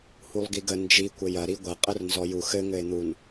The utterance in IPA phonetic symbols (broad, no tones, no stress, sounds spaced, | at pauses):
h u lˠ ɡ i ɡ ə n d͡ʒ i kʷ ɘ j ɐ ɾ i ɡʷ ɐ qʼ ə r n z ɔ j u x ɘ ŋ ɘ e̯ n̪ u n